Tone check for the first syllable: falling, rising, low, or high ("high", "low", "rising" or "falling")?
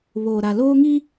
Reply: low